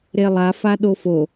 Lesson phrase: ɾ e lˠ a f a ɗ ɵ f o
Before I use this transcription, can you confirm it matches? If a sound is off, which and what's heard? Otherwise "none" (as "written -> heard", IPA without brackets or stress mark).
ɵ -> o